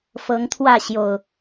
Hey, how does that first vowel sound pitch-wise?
rising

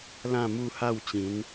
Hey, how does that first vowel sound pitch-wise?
falling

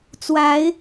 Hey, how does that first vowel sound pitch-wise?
rising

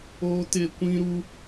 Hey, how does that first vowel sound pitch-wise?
high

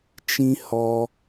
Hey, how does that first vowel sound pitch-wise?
high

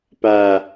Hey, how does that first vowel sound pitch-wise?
low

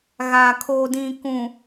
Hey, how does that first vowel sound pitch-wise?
low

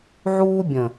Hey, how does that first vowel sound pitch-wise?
high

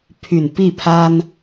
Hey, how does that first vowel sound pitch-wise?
low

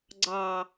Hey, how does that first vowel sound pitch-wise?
low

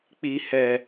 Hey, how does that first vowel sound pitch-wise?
low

